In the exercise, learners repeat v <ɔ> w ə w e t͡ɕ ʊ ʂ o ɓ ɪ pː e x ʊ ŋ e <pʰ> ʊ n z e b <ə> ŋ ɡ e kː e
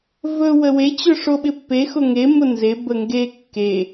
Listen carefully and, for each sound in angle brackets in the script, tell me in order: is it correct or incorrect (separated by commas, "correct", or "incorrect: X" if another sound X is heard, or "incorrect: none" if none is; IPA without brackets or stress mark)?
incorrect: ɵ, incorrect: m, correct